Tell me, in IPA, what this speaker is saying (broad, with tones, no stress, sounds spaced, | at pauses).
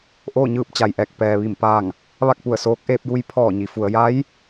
ʔ oː˥˨ ɲ ɯː˥˨ p̚ t͡ɕ a˩ j ʔ ɛː˧˩ k̚ p ɛː˩ ʋ i˧˩ m p aː˧˩ ŋ | ʋ a˥˨ k̚ p u˧˩ ə̯ s oː˧˥ k̚ ʔ eː˧ p̚ j u˧˥ j pʰ ɔː˧˩ ɲ i˩˧ f u˩˧ ə̯ j a˧˥ j